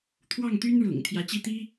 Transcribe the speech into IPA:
t̪ʰ w ɑ˥˩ ŋ t̪ y˥ n ɻ ʊ̰˨˩ ŋ t̪ʰ j ä˧˥ t͡ɕ i˥˩ t̪ i˥

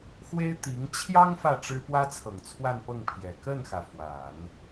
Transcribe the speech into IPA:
x w e˥ ɪ̯ t̪ i˧˥ ŋ t͡ɕʰ j ɑ˥ ŋ f ä˥˩ ʈ͡ʂ ɻ̩˥ p w ä˥ t͡sʰ ɤ˨˩ ŋ t͡sʰ w a˥˧ n p ɤ˥˩ ŋ pʰ j ɛ˨˩ k ə˥˩ n x ä˩ f w a˨˩˦ n

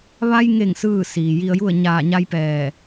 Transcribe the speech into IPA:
ʋ a˧ j ŋ e˧˩ ŋ s ɯː˥˨ s iː˩ j i˧ ə̯ j u˥˨ ə̯ ɲ aː˧˩ ɲ a˧ j p ɛː˧˩

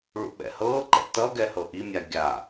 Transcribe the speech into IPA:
ɭ ṵ ɓ ɛ̰ h ɤː ǃ ɛ̰ t ʌ ɡ ɛ h ɤ ʔ i mʲ a ɡʲ a

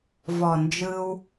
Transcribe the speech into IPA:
v ɔ˨ n d͡ʒ ɯ˧ w

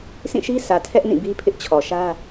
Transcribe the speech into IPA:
sʰ ĩ˦˨ ʃ i˦ s ä˨ tʰ ɛ˦ ʔ n ĩ˦˨ b i˦ pʰ ɪ˦ ʔ t͡ɕʰ ɔ˨ ʃ ä˦

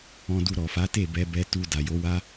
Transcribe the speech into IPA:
ɔ̃˧ d u˧ ɾ ɔ˨ f a˨˦ t e˦˨ b ɛ˧ b ɛ˧ t u˧ d a˨ j o˨˦ w a˦

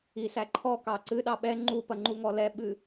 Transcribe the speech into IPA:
i s æ ǃʰ ɔ k ɑ ǀ ɨ ɗ ɑ ɓ ɛ ŋ͡ǃ u p ɐ ŋ͡ǃ u ŋ ɔ l ɛ ɓ ɨ

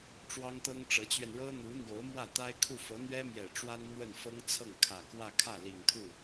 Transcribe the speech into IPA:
ʈ͡ʂ w ɑ˥ ŋ t̪ ɤ˥ ŋ ʈ͡ʂ ɤ˧˥ t͡ɕ ɥ ɛ˧ n ɻ ɤ˥ n̪ u˧˥ n̪ j o˧˥ ʊ̯ m w ä˥˩ t̪ a˥ ɪ̯ kʰ u˥˩ f ɤ˧˥ n̪ ɥ ɛ˥ m j ɛ˨˩ ʈ͡ʂ w a˥ n n̪ w ə˥˩ n f ɤ˥ ŋ t͡sʰ ɤ˥˩ ŋ kʰ ä˨˩ k w ä˥˧ kʰ ä˥˩ l i˨˩ ŋ t̪ʰ u˥˩

